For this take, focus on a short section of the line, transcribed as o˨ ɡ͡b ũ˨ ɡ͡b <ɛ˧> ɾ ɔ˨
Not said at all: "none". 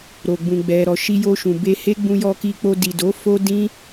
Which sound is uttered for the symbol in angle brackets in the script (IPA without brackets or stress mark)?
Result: ɛ˨